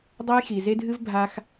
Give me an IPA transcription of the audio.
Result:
dˤ ɐ˦ j x i˨ z e˦ dʱ ɨ˦ v bʱ a˦ x

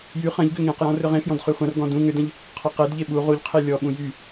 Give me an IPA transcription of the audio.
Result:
j y χ ɐ̃ ʎ ɡ ʏ ŋ ẽ q j ɔ̃ r ʏ ʁ ẽ f j ɔ̃ d χ y χʷ ɐ̃ r ɡ ɔ̃ d ũ ŋ ʏ d ɐ̃ ʎ | qʰ ɔ q e d ʎ e ɓ u ʁ u ʎ qʰ e lʲ ɔ ɓ ũ j y

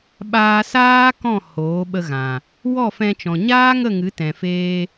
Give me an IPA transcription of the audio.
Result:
ɓ aː˧ s aː˦ k ɔ̃˦˨ h oː˨˦ ɓ ə˧ ɣ ã˨ | w ɔ˦˨ f ɛ̃˧ t͡ʃ ɔ̃˨ ɲ aː˦ ŋ ə˦˨ ŋ ɨ˨˦ t ɛ̃˨ f eː˧

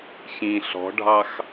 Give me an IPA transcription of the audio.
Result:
ç ĩ ɬ ɔ̤ ɖʱ ɑ x

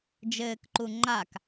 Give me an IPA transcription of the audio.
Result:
d͡ʒ ɘː k ǃ u ŋ͡ǃ a k

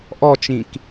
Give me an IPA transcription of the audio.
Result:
ʔ ɔ t͡ʃ ĩ k

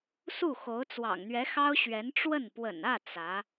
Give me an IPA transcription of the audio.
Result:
s u˥˩ x o˧˥ ʊ̯ t͡s w ɑ̰˨˩ ŋ n̪ ɥ ɛ˧˥ x ɑ˥ ʊ̯ ɕ ɥ ɛ˧˥ n ʈ͡ʂ w ə˥˩ n p w ə̰˨˩ n ä˥˩ t͡s ä˧˥

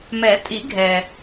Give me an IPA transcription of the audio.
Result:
m ɛ˨˩˦ tʼ i˨˩˦ ɡʱ ɛ˨

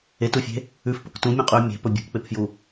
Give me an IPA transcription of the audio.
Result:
e t u fʲ e̤ | ʉ f p ɵ k t ũ mʲ ɐ̃ qʼ ʉ y̯ mʲ e̤ p ɵ bʲ ṳ k k͡p e p f j u

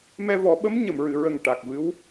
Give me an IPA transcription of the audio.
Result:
m ɛ˧ v ɔ˨˩˦ ɓ ə˧˥ m ɲ ə˨˩˨ m ɹ ɨ˨˩˨ ɹ ə˨˩ ŋ ʈ a˨˩ k̚ v ɨ˧˥ w

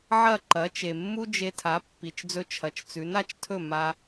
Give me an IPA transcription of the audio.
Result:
ʕ ɐ˥˩ ǃ ɐ˩˥ t͡ʃ e˩ mː u˥ d͡ʒ e˧ tʰ a˩˥ pː i˩ t͡ʃ d͡z ɵ˧ t͡ʃʰ ɐ˩ t͡ʃ t͡s ʉ˩˥ n a˧ t͡ʃ tʰ ɵ˥˩ m a˧

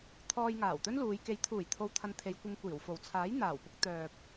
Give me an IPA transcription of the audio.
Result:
t̪ʰ ɔː˧ j ŋ aː˨˩ w t̪ ɵ˥ n l uː˨˧ j k e˨˥ j t̪ʰ uː˨˩ j t̪ʰ o˨˧ w t̪ʰ ɐ˨˧ n t̪ʰ e˨˧ j kʷ ɪ˧ ŋ kʷ iː˨˩ w f o˨˩ w t͡sʰ aː˨˥ j n̪ aː˨˩ w p ʊ˧ k̚ t̪ œː˨ p̚

